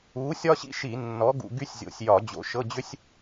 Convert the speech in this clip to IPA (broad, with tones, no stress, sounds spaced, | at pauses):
u˨˥ sʲ ɒ˥ ɕ ḭ˥ ʃ i˧˩˧ nː ɔ˨˥ ɡ ṵ˧ ɡ y˥ sʲ zʲ o̰˨˥ sʲ j ɒ˧˩˧ d͡ʑ o̰˧ ʃ ɤ˧˥˧ d͡ʑ ʏ˥ sʲ